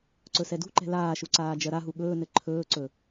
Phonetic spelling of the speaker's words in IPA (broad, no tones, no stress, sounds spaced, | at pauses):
ǀ ɵ s ɛ d ṳ ǃ ɛ̤ l aː ʃ u ǀ aː d͡ʒ ɜ ɾ a ɦ u ɠ ɵː n ɘ ǃʰ ɵː ǀ ɵ